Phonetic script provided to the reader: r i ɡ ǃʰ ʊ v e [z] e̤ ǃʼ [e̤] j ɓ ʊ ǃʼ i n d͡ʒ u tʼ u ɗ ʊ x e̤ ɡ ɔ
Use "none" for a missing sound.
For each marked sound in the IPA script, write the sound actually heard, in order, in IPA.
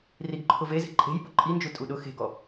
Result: z, e̤

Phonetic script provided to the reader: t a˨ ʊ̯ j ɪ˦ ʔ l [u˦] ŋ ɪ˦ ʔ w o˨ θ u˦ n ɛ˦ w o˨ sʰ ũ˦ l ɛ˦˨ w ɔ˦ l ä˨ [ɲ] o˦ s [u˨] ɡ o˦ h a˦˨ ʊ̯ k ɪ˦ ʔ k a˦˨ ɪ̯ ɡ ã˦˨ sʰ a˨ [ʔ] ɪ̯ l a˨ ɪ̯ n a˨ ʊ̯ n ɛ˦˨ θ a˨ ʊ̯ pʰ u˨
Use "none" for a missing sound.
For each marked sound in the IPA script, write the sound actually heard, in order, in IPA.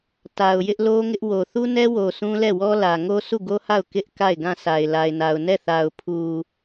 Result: o˦, ŋ, u˦˨, none

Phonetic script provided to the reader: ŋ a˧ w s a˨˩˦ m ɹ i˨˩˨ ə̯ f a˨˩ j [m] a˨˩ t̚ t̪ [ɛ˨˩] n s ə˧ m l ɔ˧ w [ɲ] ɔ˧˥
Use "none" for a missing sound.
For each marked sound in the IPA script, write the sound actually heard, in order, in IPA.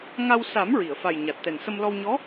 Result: ɲ, ɛ˨˩, ɲ

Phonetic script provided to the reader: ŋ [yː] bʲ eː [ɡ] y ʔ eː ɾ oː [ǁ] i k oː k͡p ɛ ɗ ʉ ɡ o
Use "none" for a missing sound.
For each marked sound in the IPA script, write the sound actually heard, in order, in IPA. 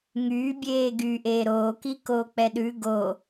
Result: yː, ɡ, k

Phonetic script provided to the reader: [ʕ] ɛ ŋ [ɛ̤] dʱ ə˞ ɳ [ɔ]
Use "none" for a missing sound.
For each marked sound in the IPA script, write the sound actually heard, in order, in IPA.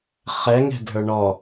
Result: χ, ɛ̤, ɔ

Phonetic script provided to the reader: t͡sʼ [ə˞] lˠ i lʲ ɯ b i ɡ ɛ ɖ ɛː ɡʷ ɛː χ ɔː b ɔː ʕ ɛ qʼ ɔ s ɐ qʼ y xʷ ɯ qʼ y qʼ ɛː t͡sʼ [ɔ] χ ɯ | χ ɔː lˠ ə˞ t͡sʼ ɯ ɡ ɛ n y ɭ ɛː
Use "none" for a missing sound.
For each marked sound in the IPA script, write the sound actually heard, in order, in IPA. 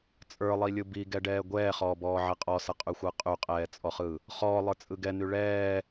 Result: ə˞, ɔ

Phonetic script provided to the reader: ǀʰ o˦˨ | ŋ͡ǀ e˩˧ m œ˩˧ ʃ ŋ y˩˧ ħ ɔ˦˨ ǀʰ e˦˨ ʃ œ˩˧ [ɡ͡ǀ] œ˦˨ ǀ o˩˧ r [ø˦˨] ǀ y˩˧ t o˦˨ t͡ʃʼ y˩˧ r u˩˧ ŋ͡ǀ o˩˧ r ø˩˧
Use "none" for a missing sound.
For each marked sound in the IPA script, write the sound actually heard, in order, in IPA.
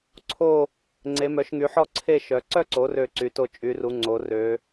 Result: ǀ, ø˦˨

